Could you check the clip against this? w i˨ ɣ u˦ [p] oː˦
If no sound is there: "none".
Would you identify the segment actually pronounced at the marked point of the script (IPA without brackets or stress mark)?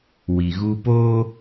p